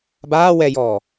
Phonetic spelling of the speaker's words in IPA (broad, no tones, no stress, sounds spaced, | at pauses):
b aː w ɛ j ɔː